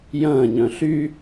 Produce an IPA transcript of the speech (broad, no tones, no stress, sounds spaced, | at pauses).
j ɐ̃ː ɲ œ̃ ɬ y